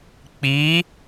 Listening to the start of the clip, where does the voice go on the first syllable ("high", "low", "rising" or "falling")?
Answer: rising